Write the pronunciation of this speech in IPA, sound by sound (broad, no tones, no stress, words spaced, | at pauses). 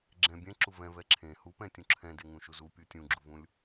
ɡ͡ǁɛ̃ bʲɛ̃ǁu vɛ̃vɛ ǁʰẽ hupɛ̃tʲũ ǁʰɛ̃deŋũʃu zupʲu tʲũɡ͡ǁuvũlʲ